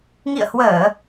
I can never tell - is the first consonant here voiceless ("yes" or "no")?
no